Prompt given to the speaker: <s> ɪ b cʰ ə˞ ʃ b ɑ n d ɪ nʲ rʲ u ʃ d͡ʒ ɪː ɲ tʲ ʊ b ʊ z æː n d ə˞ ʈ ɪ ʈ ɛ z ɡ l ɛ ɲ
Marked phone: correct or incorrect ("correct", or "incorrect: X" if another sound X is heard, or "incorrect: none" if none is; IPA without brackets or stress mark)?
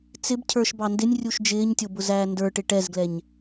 incorrect: t͡s